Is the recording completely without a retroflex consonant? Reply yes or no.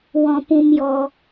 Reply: yes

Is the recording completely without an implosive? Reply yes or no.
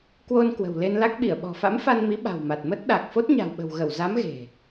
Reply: no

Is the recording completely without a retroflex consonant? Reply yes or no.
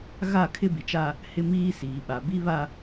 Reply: yes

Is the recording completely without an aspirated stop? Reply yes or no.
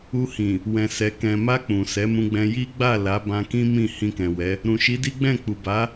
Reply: yes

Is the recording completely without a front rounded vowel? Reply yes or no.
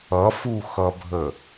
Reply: yes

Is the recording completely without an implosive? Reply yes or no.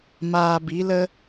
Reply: yes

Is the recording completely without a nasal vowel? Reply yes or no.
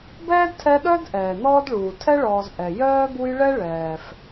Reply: yes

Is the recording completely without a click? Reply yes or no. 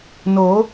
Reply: yes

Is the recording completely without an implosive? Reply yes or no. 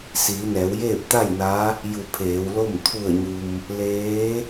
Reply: yes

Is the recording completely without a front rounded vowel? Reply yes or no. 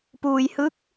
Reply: yes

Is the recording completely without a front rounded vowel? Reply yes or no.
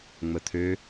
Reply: no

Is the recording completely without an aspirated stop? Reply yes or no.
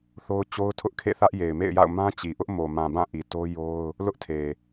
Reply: no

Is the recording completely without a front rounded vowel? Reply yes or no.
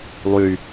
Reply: no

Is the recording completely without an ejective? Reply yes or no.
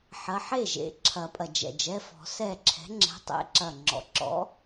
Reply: no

